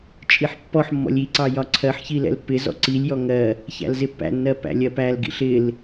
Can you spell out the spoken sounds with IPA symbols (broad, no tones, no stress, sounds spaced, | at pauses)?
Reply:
t͡ʃʼ i ħ pː ɔ ħ mː ɔ̰ lʲ i ǀ ɑ j ɒ ǀʰ ɜ ħ ç i l ɛ̰ l pː ɪ z ɔ̰ ǀ i lʲ j ɔ ŋ ɜ | ç æ̰ l z ɪ pː æ̰ nː ɜ p æ̰ lʲ ɜ p æ l ɡ ḭ ɬ ɪ l